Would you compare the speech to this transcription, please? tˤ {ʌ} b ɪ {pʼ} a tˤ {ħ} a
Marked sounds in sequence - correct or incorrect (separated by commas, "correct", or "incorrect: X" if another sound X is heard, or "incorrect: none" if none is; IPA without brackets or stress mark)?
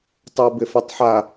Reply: incorrect: a, incorrect: f, correct